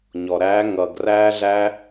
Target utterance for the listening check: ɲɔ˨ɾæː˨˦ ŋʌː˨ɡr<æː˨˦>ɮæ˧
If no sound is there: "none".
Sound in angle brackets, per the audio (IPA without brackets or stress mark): æː˧